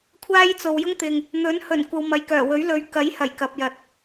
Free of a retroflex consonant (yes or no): yes